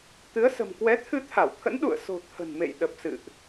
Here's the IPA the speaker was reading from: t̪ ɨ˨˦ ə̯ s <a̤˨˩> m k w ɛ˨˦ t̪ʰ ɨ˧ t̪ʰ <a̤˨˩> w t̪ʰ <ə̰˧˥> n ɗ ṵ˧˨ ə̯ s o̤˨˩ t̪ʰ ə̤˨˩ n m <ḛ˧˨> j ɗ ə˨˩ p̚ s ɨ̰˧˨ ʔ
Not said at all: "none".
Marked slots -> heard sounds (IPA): ə̤˨˩, a˧˩, ə̰˧˥, ḛ˧˨

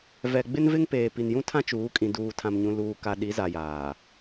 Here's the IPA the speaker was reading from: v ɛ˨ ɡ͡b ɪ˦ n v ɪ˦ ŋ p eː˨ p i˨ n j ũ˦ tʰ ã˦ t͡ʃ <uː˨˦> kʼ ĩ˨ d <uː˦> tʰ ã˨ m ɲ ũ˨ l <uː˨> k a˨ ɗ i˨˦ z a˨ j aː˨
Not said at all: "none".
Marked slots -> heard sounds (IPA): uː˨˦, uː˨, uː˨

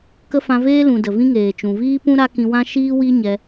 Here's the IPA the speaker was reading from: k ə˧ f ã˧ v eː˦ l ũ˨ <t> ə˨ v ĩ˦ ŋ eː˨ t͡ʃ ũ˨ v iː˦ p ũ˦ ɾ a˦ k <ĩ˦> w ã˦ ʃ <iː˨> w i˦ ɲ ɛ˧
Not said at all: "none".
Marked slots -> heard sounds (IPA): d, ĩ˧, iː˦

